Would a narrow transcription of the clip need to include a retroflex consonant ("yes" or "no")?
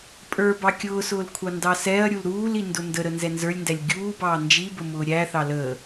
no